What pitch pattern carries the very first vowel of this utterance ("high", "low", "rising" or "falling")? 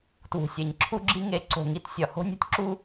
low